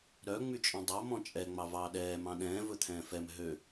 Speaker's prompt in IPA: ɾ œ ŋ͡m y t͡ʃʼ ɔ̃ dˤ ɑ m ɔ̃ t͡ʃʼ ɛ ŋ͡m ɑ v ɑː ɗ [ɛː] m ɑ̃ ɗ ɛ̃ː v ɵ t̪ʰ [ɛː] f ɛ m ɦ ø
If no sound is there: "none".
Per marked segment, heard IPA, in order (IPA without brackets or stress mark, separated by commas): ɛː, ɛ̃ː